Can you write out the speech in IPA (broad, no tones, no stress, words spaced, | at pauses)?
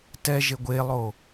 tɛ ʒeɡʷelˠo